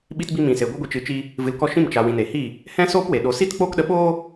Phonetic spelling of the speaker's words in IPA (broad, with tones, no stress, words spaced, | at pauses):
ɓi˧tbi˧ mĩ˨se˨ ɡʷɨ˦ɡʷi˧t͡ʃɨ˧t͡ʃi˦ | vɨ˨l kɔ˧ʃĩ˦˨m t͡ʃa˨ wĩ˨ ne˨hi˦˨ | hɛ̃˦soː˦pwe˨ ɗo˨si˦tk͡poː˦k ɗə˧ɓoː˦